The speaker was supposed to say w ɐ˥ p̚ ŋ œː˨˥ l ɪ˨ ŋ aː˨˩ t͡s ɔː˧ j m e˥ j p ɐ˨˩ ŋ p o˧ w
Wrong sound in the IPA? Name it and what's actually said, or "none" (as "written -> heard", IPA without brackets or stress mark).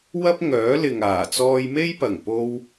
none